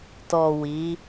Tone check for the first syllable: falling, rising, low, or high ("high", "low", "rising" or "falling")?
low